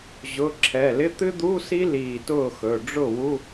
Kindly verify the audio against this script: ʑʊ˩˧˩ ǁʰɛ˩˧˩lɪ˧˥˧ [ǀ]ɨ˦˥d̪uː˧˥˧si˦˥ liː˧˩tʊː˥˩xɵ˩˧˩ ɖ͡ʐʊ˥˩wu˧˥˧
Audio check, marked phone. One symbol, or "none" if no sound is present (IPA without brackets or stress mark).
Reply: t̪